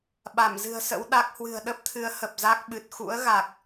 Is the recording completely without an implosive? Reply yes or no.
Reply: no